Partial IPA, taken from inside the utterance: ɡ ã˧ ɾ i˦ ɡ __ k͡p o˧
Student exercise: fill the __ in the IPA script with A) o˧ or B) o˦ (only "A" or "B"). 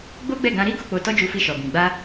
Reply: A